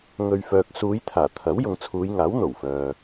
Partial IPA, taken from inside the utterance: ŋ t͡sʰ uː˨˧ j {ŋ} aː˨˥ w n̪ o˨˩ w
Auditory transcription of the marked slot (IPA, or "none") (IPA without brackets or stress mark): ŋ